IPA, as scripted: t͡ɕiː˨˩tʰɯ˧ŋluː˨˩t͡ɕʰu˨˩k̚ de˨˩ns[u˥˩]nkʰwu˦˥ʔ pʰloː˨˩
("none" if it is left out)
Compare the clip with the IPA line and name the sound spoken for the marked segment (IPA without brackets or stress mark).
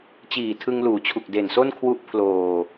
o˥˩